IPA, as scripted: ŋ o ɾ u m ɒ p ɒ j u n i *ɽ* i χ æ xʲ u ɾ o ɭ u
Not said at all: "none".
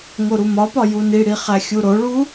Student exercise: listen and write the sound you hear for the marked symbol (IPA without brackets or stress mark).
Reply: ɽ